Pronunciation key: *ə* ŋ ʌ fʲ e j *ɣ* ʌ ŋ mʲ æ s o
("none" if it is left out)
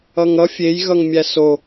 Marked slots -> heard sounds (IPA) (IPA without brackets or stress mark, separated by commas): ʌ, ɣ